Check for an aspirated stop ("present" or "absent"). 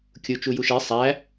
absent